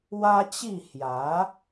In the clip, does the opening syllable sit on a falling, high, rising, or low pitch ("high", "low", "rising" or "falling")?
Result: high